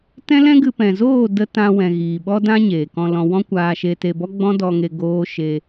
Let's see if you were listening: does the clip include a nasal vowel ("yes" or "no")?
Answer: yes